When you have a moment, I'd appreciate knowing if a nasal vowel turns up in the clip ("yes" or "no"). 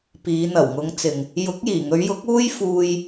no